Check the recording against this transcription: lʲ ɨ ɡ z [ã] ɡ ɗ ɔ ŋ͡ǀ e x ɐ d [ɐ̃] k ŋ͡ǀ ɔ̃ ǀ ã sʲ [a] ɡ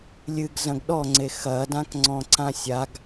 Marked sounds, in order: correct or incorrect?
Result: incorrect: ɐ̃, incorrect: ã, correct

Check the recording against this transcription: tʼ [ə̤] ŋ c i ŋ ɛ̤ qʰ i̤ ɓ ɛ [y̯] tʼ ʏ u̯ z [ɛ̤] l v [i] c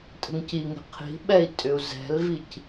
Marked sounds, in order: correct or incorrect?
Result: correct, incorrect: i̯, correct, correct

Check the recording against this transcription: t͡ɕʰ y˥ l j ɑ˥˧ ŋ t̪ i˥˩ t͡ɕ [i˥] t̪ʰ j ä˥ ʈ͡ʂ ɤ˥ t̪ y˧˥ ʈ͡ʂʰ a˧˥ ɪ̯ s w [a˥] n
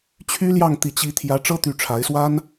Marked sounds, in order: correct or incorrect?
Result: correct, correct

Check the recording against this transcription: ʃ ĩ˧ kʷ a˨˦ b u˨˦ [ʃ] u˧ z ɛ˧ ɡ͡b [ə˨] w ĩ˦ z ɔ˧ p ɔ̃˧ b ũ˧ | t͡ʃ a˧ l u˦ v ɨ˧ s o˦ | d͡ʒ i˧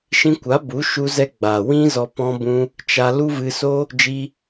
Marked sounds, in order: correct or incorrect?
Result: correct, incorrect: a˨

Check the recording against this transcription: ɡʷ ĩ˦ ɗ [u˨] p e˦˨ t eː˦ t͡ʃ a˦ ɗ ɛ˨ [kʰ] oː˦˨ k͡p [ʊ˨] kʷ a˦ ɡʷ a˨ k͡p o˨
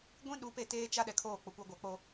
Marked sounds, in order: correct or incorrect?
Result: incorrect: u˨˦, correct, correct

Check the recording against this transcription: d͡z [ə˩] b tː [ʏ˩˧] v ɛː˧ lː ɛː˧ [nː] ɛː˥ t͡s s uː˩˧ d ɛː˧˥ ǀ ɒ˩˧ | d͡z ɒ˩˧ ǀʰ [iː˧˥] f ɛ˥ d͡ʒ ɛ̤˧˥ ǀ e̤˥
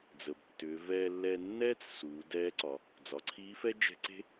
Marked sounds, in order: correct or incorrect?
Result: correct, correct, correct, correct

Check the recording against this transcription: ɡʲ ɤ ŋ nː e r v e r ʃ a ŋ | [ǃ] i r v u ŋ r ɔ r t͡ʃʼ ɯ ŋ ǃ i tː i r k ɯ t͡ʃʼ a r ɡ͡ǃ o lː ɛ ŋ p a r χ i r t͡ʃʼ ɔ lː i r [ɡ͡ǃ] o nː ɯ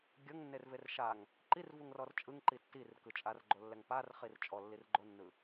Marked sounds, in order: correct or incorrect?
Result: correct, correct

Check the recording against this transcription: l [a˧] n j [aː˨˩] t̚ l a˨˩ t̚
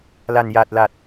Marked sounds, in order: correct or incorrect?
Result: incorrect: a˨˩, incorrect: a˨˩

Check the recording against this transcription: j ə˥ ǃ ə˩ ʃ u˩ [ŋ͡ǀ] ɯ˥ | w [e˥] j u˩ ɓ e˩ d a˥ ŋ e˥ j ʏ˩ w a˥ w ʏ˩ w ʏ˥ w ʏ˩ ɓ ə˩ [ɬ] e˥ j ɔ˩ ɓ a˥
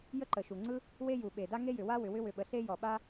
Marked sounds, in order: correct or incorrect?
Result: correct, correct, correct

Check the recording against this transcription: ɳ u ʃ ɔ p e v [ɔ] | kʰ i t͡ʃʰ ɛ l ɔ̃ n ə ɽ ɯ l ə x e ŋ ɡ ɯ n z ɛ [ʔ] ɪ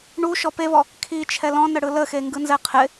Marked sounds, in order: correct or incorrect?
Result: correct, incorrect: qʰ

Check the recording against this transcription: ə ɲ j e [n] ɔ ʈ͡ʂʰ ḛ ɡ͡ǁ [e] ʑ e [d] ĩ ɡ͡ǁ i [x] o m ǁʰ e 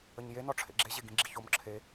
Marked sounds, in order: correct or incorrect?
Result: correct, correct, incorrect: ɡ, incorrect: ç

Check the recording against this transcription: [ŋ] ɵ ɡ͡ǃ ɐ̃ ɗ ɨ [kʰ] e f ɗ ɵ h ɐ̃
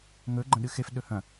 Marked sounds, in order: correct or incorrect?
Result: correct, incorrect: x

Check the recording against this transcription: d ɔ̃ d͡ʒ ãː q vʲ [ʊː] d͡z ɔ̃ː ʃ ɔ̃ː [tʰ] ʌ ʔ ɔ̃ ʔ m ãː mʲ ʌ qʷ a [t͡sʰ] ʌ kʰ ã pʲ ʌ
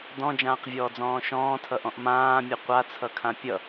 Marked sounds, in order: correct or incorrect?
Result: incorrect: ɔː, correct, correct

